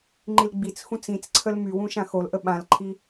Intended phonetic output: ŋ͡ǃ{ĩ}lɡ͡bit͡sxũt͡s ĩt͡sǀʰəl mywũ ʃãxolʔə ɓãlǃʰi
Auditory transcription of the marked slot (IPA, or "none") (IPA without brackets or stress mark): i